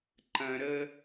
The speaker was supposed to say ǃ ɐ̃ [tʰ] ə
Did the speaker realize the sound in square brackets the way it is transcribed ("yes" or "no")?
no